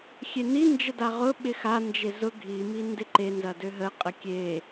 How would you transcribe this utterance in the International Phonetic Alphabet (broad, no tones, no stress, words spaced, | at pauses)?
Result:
xʲeni nd͡ʒədaʁʊ ɓɪxa nd͡ʒezʊ ɡʱi mindɪǃe nzɐdøɦə qʼəkʲe